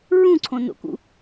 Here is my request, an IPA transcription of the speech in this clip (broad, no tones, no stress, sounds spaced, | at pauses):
ɹ ũ ǀʰ õ n o̰ k ṵ